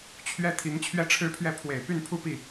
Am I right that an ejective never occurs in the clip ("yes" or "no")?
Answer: yes